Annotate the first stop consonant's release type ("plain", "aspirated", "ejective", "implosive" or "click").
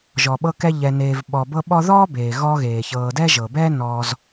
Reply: implosive